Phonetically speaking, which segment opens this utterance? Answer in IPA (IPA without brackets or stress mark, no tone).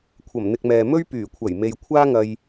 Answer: kʷʰ